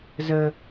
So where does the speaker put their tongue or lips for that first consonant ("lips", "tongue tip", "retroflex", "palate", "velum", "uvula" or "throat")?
tongue tip